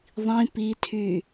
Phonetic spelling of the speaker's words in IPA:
ðˤĩ pitʰy

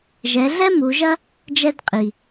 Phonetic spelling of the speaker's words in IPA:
ʒɛ˩˧ɮɛ˥ mu˩˧ʒɐ˥ | d͡ʒɛ˧dqʼi˩

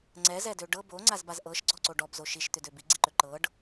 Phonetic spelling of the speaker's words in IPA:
ŋ͡ǀɛzɛdø ɖɤ boŋ͡ǀazbaz ʔɤʃɡ͡ǀɔǀo ɖɔbzo ʃiʃt̪ʏdø biɡ͡ǀiǃø ǃɤɖ

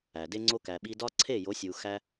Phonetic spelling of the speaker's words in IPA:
æ˨ de˧ŋ͡ǀo˧ kæ˨ɓi˧dɒ˦ ǀʰe˦˨jo˨˦sʲu˨ xæ˧

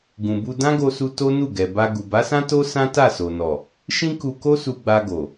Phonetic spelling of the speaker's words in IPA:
ɡũ˨bu˧ dã˦ɡo˧su˧ to˦nu˦˨ɡɛ˨ ba˧ɡu˨ ba˨˦sã˦to˦ sã˦ta˦˨so˨nɔ˨ | ʃĩ˦ku˧ko˦ su˧ɡ͡ba˧ɡo˨

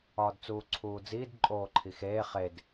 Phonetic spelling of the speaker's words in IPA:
ɒːdt͡suːǀʰuːd͡ziːd ǃʼoːǃʰixeː χed

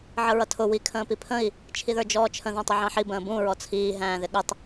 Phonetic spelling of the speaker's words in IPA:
ʕəɹʌtʰʊ wi kʰə̃ːpipʰə̃i̯ | t͡ʃʰiðə˞d͡ʒɔːt͡ʃʰə̃ ðæ̃tˤʊʕɑ̃ħi bə̃ːbũ ɹɔt͡sʰiː ɦæ̃ːðɪɠətˤ

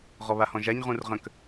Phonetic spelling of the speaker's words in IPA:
ʁɔβahɔ̃ʒaɲ ʁũrʁə̃k

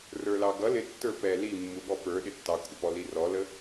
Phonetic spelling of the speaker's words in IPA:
rə˞lɑɡʌ lɪ tːə˞pɛ li mːuɠɔpə˞ ɗɪtːɑkʷʰəpɔ lirɔlə

